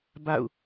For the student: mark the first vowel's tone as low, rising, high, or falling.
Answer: falling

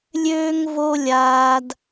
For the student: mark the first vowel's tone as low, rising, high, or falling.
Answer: high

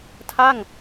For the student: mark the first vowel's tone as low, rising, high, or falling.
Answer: falling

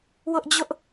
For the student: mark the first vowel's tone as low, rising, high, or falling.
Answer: high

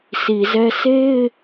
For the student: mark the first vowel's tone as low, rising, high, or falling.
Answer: low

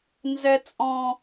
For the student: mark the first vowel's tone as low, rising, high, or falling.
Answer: high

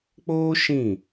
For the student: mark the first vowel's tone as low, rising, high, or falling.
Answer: high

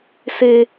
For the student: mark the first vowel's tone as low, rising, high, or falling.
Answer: high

